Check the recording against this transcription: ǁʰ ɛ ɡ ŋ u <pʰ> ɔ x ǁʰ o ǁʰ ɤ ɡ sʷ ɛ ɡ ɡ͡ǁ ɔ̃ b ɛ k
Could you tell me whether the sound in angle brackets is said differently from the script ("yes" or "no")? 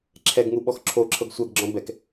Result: yes